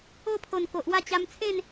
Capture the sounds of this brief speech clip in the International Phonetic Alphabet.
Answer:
o˥˧pʰo˨˩n ko˨ʔwa˥˧t͡ɕa˧m t͡sʰẽ˥˧n

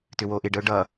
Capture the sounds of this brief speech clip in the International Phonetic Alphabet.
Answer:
tʏwoʔɪɖəʊ̯ ɖʌ

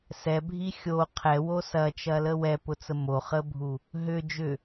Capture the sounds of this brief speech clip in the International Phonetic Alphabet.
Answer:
sɛbʱi xʲo qʰɛwo sɐt͡ʃɐlə wɛpʊt͡sə moχəbʱu | ɦʏ d͡ʒʏ

